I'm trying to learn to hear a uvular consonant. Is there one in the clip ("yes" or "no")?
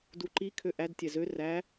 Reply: no